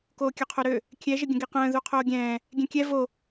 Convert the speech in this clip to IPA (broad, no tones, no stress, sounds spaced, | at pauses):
k oː kʲ ø qʰ o ɾ ø | kʲ ɛ ʒ ə ɡʲ ə̃ ɡ i q ə̃ː ð u qʰ oː ɡʲ ɛ̃ː | ɡʲ ɛ̃ kʲ ɛ v o